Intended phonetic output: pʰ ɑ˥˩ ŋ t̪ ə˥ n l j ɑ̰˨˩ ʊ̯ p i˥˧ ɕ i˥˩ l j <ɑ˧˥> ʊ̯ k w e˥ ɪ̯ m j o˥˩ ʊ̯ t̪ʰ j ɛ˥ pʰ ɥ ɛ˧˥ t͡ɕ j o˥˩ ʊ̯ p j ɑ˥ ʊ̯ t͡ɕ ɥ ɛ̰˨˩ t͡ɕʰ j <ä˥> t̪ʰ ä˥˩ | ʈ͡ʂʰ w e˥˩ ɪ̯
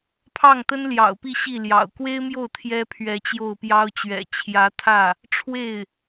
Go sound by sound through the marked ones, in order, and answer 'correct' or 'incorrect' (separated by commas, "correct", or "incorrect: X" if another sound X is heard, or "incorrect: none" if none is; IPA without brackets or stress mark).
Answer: incorrect: ɑ̰˨˩, incorrect: ä˧˥